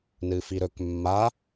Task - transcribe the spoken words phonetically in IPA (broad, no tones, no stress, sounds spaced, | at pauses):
n ɨ f i ɾ ɵ k mː a